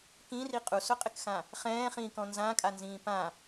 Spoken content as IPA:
k ĩ r i qʼ u s ʊ qʼ ɪ k x ã | χ ɛ̃ː χ ĩː k ɔ̃ n z ã kʼ a n z ĩː p ã

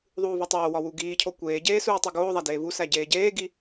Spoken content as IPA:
ðˤ uː v ɒ tˤ oː w ɒ w u ɡ iː cʰ o kʷ eː ɟ eː s uː tˤ i ɡ oː ðˤ æ d eː v u s æ ɟ eː ɟ eː ɡ i

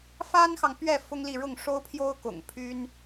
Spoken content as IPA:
f a˥ n x ɑ˨ ŋ p ɥ ɛ˥˩ f ʊ˥ ŋ l i˥˧ ɻ ʊ˥˩ ŋ ʂ o˥ ʊ̯ pʰ j o˥ ʊ̯ k ʊ̰˨˩ ŋ pʰ y˥ n

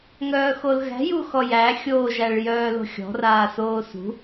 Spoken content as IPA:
ŋ œː x o l ɣ æ̤ j u x ɔ j æ xʲ oː ʒ æ ɭ j œː l o̤ xʲ ɔ̤ r aː s oː s ṳ

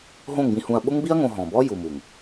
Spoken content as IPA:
ɦ õ˦˨ ŋ b ĩ˧ h ũ˧ ɐ̯ ɓ ʊ˦ ŋ b i˦ ɐ̯ ŋ õ˧ ɦ ɔ̃˨ b ɔ˦ j u˨ m u˨ ŋ

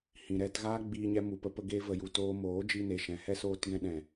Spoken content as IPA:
h ĩ˨ ɾ ɛ˧ t ɣ aː˦ ɡ͡b iː˧ ɲ ɛ˧ m u˨ p ə˧ p ə˧ ɡ e˧ v ə˨ j u˨ t oː˧ m oː˨˦ d͡ʒ i˧ n e˨ ʃ ɛ̃˨ h ɛ˦ s oː˧ t ɡ ɛ̃˦ ɗ ɛ̃˨

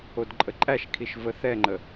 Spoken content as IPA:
o d ǃʼ ə ǃʼ æ ʃ kʰ i ʃ v ə θ ɛ ŋ͡ǃ ə

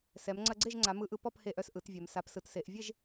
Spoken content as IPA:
s ɛ˩˧ m ŋ͡ǀ ɐ˧ ɡ͡ǀ e˥˨ ʒ ŋ͡ǀ a˩˧ m ɯ˧ ʔ ɯ˧ p ɔ˥˨ p h e˧ ʔ œ˧ s ʔ ɯ˩˧ t vʲ ɛ˩˧ m s a˩˧ p s ɯ˩˧ t s e˩˧ ʔ vʲ e˥˨ ʒ

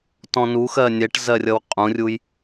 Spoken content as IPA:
t ɔ̃ n u x ɜ nʲ ɛ ʈ z ɜ rʲ ʌ w qʼ ũ rʲ u j

